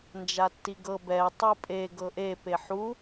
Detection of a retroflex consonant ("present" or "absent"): absent